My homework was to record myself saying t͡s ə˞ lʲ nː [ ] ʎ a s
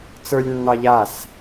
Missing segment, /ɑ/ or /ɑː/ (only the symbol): ɑ